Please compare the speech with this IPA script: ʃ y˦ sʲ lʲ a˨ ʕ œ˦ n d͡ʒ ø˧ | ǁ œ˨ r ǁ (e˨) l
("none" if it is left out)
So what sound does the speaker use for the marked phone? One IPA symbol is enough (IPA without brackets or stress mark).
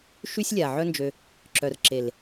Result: e˨